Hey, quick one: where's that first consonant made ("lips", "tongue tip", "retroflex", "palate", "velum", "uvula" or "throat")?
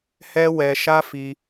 throat